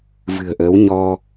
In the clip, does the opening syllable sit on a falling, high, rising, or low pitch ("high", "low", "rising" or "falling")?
low